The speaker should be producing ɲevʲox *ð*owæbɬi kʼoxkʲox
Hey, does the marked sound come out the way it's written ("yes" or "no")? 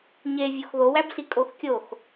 yes